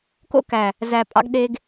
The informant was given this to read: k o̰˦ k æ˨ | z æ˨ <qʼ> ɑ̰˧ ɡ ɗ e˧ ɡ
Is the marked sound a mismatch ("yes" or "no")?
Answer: yes